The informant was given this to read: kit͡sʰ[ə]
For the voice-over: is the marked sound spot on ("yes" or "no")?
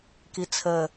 yes